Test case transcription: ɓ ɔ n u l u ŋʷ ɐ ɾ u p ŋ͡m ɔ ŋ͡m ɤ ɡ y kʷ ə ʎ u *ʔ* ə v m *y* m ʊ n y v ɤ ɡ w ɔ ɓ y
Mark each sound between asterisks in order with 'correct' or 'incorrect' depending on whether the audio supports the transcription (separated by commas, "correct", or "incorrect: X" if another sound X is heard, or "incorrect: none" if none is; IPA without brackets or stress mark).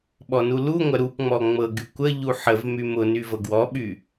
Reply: incorrect: ħ, correct